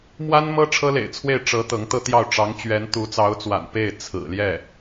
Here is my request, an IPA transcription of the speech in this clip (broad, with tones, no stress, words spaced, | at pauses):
mwa˥nmɤ˥ ʈ͡ʂʰɤ˥lḛ˨˩ɪ̯t͡sʰwe˥˩ɪ̯ ʈ͡ʂɤ˧˥ t̪ɤ˧˥ŋt̪ɤ˥t̪jɑ˥˩ʊ̯ ʈ͡ʂɑ˧˥ŋt͡ɕɥɛ˧˥n t̪u˧˥t͡sɑ˧˥ʊ̯t͡swa̰˨˩n pe˥˩ɪ̯ t͡sʰɹ̩˨˩ljɛ˥˩